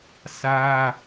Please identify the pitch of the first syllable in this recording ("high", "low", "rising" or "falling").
high